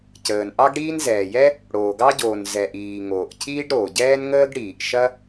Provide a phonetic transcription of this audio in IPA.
c əː˩ n ʔ ɑ˥ ɡ ɽ iː˥ n z ɛː˩ j ɛ˥ | ɽ oː˩ ɡ ɑ˥ ɟ oː˩ n z ɛ˩ ʔ iː˩ ŋ oː˩ ʔ cʰ iː˥ ɖ ɾ oː˩ ɟ ɛː˥ n ŋ əː˥ ɡ ɽ iː˩ ʔ ʃ ɐ˥

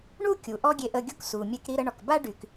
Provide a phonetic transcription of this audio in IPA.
ɳ u˥ kʲ u˩ ʔ ɔ˥ ɡʲ e˧ ʔ ə˧ ɡʲ o˥ k s u˩ mʲ ɛ˧ k ɾ i˧ ɾ ə˧ ɳ ɔ˩ k b a˥ ɖ y˩ k

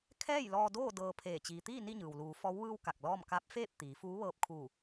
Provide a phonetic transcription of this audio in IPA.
kʰ ɛː˥˨ j l ɔː˧ d oː˥˨ d ɤː˧ pʰ eː˧˩ t͡ɕ iː˩ t̪ iː˥˨ n i˥˨ ɲ ɯː˩ w l uː˩˧ f ɔː˧˥ w ʋ ɯː˧ w k a˧˩ k̚ l ɔː˥˨ m k a˧˥ p̚ f eː˥˨ p̚ t̪ iː˩˧ f uː˧˥ ʋ ɤː˧ p̚ kʰ uː˧˩

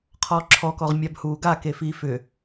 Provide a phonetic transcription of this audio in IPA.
qʰ ɔː ǁʰ ɔ k ɔ ʁ mʲ a b h uː ɡ a k e f iː f ʏ

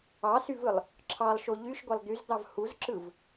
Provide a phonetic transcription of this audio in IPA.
ɑ s y v ɯ lˠ | ǁʰ ɑ lˠ ʃ o ʎ y ʃ ɡʷ e lˠ d̪ y z d̪ ɑ v h u z ǁ ɯ v

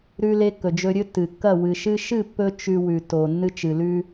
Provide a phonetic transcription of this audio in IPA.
ɾ ʉ˧ l e˧ kː ɵ˩ d͡ʒ ɵ˧ ɾʲ ɵ˥ tː ɨ˩ kː ɐ˥˩ w ɨ˩ ʃ ɨ˧ ʃ ɨ˥˩ pː ɵ˥ t͡ʃ ʉ˧ w ʉ˩ t o˩ nː ɨ˧ t͡ʃ ɨ˩ l ʉ˧

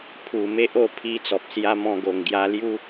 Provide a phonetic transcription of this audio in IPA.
pʰ u˨˩ m e˦ ʔ o˥˧ pʰ i˧ t͡s ɔ˨ p̚ s j a˧ m ɔ̃˧ ɡ o˨˩ ŋ ɡ j a˧ l j u˦

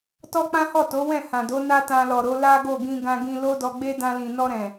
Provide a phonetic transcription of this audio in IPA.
t ɔ˦ k͡p ã˦ h ɔ˦˨ t o˨˦ w ɛ̃˦˨ h ã˨ d o˨˦ n a˦ t ã˧ l ɔ˨ ɾ o˨˦ l a˦ ɡ o˦˨ ɡ ĩ˧ ɡ ã˧ ɡ ĩ˧ l o˦ d ɔ˧ ɡ͡b e˦ d ã˧ l ĩ˨ n ɔ˧ ɾ ɛ̃˨

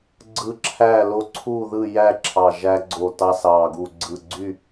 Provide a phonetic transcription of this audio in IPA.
ɡ͡ǀ ɯ˦ ǁʰ æ˥˨ l o˦ ǀʰ u˥˨ ð ɯ˥˨ j æ˥˨ ǁʰ ɑ˧˩ ʒ æ˦ ɡ͡ǀ o˧˩ t ɑ˦ s ɑ˧˩ ɡ u˧˩ ɡ͡ǀ ɯ˧˩ ɡ͡ǀ y˥˨

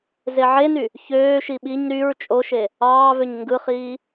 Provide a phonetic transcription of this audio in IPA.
z e ʕ e n y | ç øː ʃ i ɓ i ɲ ɾ y ɹ t͡ʃʼ o ʃ e | ɑː v ø ɲ ŋ ɡ ɯ χ iː

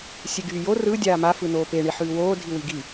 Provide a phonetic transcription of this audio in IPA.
sʲ e ɡ yː j o r ɯ dʲ aː m a f ɯ n oː p e ɳ i ħ ʉː w oː dʱ i w i ɡ i

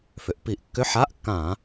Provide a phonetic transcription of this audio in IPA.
f ʏ˩˧ ʔ p i˧˩˧ ʔ kː ʏ˧˥˧ ħ a˧˥˧ ʔ kː ã˧˩˧

